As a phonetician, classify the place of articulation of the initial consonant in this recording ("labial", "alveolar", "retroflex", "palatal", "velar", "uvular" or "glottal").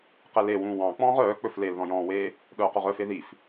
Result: uvular